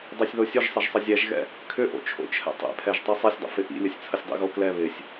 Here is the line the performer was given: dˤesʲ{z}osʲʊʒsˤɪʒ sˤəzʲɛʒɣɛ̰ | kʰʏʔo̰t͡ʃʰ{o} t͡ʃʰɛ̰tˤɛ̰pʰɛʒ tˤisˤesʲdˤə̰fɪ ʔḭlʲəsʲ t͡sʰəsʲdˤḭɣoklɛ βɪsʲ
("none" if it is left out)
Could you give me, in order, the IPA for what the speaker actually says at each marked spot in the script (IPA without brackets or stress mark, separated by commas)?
ð, o̰